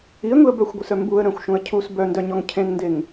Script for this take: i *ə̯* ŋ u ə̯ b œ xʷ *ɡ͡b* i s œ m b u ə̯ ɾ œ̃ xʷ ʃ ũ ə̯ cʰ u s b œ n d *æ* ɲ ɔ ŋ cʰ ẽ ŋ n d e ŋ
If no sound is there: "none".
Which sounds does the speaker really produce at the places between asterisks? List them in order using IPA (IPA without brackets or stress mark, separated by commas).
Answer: ə̯, ɡʷ, œ